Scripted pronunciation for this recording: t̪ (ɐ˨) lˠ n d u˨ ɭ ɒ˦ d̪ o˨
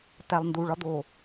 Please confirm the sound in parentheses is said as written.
no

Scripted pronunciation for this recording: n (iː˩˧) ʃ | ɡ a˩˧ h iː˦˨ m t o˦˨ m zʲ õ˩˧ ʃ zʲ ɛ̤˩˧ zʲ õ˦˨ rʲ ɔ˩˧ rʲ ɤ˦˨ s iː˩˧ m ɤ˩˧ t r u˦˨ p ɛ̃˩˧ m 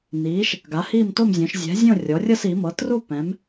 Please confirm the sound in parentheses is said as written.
yes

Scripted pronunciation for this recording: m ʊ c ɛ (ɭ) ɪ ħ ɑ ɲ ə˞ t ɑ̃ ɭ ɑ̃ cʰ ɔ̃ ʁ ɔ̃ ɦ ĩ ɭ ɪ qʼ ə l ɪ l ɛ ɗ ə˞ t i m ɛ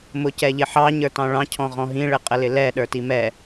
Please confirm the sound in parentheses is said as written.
no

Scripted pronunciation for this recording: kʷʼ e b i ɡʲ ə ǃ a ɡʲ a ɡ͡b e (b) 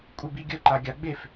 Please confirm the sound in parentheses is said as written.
no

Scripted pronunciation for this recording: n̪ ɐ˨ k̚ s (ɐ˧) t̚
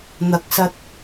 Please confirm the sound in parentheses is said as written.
yes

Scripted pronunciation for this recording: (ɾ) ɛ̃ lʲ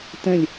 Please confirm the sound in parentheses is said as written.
no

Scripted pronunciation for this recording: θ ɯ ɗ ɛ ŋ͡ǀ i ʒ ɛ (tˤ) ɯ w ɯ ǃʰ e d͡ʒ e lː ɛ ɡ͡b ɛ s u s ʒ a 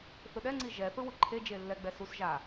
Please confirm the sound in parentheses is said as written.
no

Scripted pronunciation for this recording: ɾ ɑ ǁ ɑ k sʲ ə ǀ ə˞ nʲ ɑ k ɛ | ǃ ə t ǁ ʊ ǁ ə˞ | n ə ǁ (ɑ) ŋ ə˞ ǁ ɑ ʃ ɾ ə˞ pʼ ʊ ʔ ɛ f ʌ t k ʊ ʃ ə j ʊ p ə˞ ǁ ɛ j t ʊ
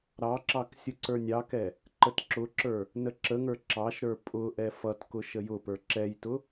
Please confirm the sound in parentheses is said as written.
no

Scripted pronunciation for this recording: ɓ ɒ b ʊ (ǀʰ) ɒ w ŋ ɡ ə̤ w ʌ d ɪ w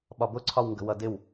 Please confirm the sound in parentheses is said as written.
yes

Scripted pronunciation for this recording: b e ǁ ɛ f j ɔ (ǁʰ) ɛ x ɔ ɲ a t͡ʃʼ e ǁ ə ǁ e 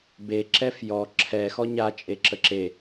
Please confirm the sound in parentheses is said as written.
yes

